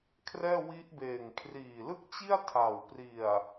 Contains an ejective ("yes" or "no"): no